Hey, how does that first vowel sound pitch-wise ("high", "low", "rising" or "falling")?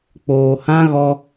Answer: low